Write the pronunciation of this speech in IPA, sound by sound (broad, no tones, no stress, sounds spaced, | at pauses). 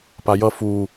p a j ʌ f u